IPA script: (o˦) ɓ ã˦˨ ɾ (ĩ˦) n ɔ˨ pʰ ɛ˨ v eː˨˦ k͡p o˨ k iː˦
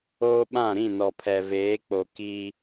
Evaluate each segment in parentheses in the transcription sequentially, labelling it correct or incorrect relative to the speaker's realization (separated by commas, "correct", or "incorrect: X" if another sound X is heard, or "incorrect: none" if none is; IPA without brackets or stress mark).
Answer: incorrect: oː˦, incorrect: ĩ˦˨